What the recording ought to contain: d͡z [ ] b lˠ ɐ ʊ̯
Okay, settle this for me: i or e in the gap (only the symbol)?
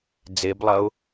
e